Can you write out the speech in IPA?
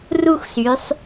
r u˥˧ xʷ s y˩˧ sˤ

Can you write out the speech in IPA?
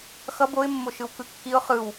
x ʌ b o ɪ̯ mː o ʃ ɯ w k ɯ kː i ʊ̯ χ ɯ w

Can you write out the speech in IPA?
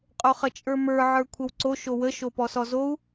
qʼ o χ ə t͡ʃʼ ə˞ m ə˞ ʕ ə˞ kʷʰ ə w ǀ o ʃ o w ə ʃ o p ɔ s ɔ z o u̯

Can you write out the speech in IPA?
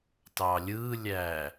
t ɑ lʲ ɯ lʲ æ

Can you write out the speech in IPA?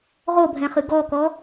ʁ o bʱ ɛ̃ χ ɨ ɡ ɔ k ɔ

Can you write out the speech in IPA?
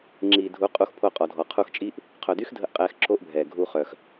ŋ͡ǁ iː˨ dʱ u˨˦ qʼ u˧ x pʰ o˧ qʼ ɔ˨ dʱ ɔ˨ qʰ u˧ x t͡ʃʼ i˦ ʔ | qʰ œ˨ d y˦ x dʱ ə˧ ʔ qʼ ɛː˧ x ǁ o˦ ʔ bʱ ɛː˨ ɡʱ u˧ χ œ˨ x

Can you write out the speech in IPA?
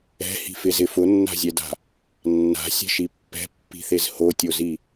ɛ̤ h i̤ f ɪ z ɪ f ʊ nː a̤ zʲ ɛ d a̤ | nː a̤ sʲ ɛ̤ ʃ i pː ɛ̤ pː i̤ θ e z h o tʲ o z i

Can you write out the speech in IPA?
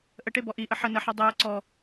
ʔ ə ʈ e b ɔ ʔ i ʔ ə ħ ə n ə ħ ɐ dˤ e j ə ǀ ɔ

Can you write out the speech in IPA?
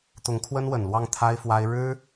t̪ ʊ˧˥ ŋ kʰ w ə˥ n w ə˨˩ n l w ɑ˥˩ ŋ t̪ʰ a˥ ɪ̯ f w a˥ ɪ̯ ɻ ɻ̩˥

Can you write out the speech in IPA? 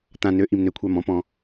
t̪ ã˨ n ø˩˥ ʔ i˨ m n ø˩˥ kʷʰ a˨ m ɔ̃˩˥ p ɔ̃˨

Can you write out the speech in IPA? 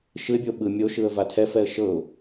ʃ ɯ ɪ̯ bʲ o ɓ ɯ mʲ o ʃ ɯ ə̯ v a tʰ ɛ f ɛ ə̯ ʃ ɤ ʊ̯

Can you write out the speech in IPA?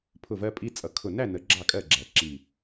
pʰ ʊ˦˨ v ɜ˦ pʼ i˦ t͡sʼ ʌ˨˦ kʰ ʊ˨˩ n æ˦˨ n ə˨˦ ɡ͡ǁ ɑ˦˨ kʼ ɜ˦˨ ɡ͡ǁ æ˨˩ ǁ i˨˩

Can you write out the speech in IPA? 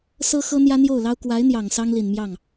s ɤ˥ x ɤ˥ n̪ j ä˥ n̪ j o˥˩ ʊ̯ l ɑ˥ ʊ̯ k w a˧˥ ɪ̯ n̪ j ɑ˨˩ ŋ s ɑ˥ ŋ l i˨˩ n m j ɑ˥˩ ŋ

